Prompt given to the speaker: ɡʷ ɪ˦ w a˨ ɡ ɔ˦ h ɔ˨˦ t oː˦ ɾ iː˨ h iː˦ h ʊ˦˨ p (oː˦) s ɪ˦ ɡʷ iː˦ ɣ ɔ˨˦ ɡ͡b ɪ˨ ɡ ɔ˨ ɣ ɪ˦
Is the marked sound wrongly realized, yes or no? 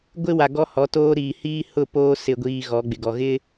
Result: no